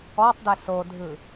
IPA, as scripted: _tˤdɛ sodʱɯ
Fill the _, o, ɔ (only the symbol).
ɔ